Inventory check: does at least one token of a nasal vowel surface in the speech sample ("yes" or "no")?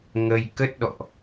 no